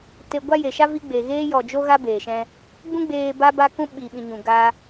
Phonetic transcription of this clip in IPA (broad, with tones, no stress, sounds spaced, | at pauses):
t e˧ ɡʷ a˦ j e˨ ʃ a˦ v i˧ ɡ͡b e˨ ɣ eː˦ j ɔ˨ d͡ʒ o˦ ɣ a˦ b eː˨ ʃ ɛ̃˧ | ɡ͡b ũ˦ ɡ͡b eː˧ b a˦ b a˦ k ũ˦ ɓ i˨ ɓ ĩ˨ ɲ ũ˨ ɡ a˦